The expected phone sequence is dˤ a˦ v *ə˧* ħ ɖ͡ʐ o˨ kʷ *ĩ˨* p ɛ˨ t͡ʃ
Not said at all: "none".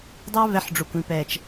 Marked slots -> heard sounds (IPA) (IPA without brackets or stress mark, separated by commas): ɛ˧, ĩ˨